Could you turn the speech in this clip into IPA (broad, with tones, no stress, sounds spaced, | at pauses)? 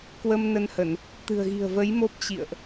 k w ə˧ m n ə˧ n h ə˧˩˨ n | t̪ ɨ̤˨˩ ə̯ ɣ i̤˨˩ ə̯ v ə˨˦ j m o˦˥ p̚ t͡ɕ ḭ˧˨ ə̯ ʔ